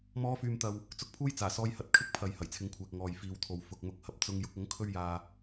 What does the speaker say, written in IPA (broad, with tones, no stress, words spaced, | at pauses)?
mɔː˨˧fyː˨mt̪ɐ˨w | t͡sʊ˨˥k̚pʰuː˥j t͡saː˨˩sɔː˧jhɐ˨t̚ kʰɪ˥k̚pʰɐ˨j hɐ˨˩jt͡sʰɪ˨˧ŋkʷʰɛː˨k̚ ŋɔː˨jfiː˨wt̪ʰo˨w fʊ˨k̚mʊ˨˥k̚hɐ˨p̚ t͡sʊ˧ŋ jʊ˨˥k̚ʊ˨˥ŋ kʰɵ˥ɥjaː˧